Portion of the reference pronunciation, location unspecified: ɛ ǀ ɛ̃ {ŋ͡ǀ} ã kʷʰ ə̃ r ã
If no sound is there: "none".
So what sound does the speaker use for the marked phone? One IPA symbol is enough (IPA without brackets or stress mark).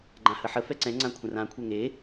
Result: ŋ͡ǀ